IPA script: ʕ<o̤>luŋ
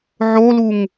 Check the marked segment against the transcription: incorrect: o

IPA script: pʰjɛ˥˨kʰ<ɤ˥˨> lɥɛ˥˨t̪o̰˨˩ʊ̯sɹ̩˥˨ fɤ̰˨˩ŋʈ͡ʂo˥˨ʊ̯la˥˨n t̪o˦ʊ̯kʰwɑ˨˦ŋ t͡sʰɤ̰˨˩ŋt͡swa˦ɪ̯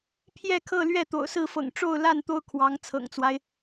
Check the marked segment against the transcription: correct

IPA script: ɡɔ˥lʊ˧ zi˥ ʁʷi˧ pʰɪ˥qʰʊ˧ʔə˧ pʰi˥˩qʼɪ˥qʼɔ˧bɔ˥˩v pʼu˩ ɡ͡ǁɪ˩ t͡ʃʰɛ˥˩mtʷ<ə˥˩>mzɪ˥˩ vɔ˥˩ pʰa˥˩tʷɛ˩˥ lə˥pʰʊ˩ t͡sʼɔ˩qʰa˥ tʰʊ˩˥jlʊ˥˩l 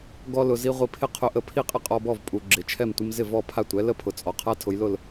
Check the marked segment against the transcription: incorrect: ə˥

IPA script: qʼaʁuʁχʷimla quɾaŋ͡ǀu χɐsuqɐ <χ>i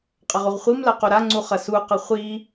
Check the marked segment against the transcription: incorrect: χʷ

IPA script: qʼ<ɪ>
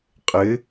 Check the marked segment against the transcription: correct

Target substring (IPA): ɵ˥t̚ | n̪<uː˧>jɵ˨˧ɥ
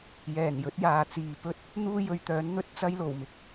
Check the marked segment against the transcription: incorrect: uː˥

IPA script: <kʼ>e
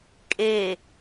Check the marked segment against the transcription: correct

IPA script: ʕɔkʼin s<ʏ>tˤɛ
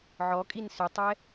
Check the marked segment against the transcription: correct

